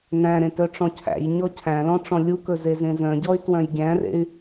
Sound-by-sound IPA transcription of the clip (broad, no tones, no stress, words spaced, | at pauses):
næ̃ɾẽ tœʈ͡ʂɔ̃cʰæ̰jɲɔ cʰæ̃lɔ̃ ʈ͡ʂɔ̃lʲukɵ zezẽzœ̃ɟɔy̯ twœ̃jɡʲæ̃rḛy̯